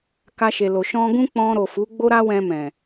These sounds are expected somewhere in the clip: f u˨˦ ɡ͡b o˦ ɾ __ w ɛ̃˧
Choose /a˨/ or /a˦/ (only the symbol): a˦